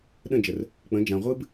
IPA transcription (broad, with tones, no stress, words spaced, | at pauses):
ɗə̃˦˨d͡ʒə˨r | k͡pə̃˨˦d͡ʒã˨ʁʷɨ˦b